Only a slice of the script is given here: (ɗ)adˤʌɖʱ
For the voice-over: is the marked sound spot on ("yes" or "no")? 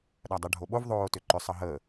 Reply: yes